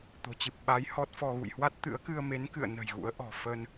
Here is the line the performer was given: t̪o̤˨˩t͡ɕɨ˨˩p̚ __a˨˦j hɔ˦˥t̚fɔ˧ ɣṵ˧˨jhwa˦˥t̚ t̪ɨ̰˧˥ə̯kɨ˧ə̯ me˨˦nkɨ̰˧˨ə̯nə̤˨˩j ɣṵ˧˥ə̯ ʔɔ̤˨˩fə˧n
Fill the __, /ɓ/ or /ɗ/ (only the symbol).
ɓ